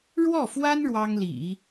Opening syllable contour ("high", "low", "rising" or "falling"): falling